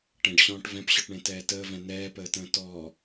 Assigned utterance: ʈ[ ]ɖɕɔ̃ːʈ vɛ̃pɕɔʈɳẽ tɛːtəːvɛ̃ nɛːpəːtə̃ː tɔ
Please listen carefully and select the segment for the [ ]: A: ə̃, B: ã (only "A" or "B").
A